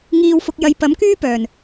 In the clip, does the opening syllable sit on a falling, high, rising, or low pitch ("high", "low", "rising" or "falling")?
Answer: low